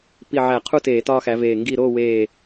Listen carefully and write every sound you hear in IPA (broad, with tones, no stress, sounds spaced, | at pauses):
p i˧˩ ʕ æ˧˩˧ qʰ u˥˨ t eː˧˩˧ t ɒː˦ x æ˨˦ v eː˧˩ ŋ ɡ i˥˨ ɾ oː˥˨ w eː˧˩